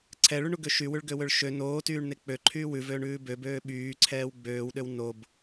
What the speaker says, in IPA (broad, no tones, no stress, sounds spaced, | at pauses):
ǀʰ ɛ ɭ y ɳ u ɡ ø ʃ y w ʉ ɭ ɡ ø w ø ɭ ʃ ø n oː t yː ɳ n e k͡p ø ǃʰ yː w ʉ v øː ɳ ʉː b ø b øː ɓ yː ǀʰ ɛː w ɡ͡b øː w ɗ ø w n o b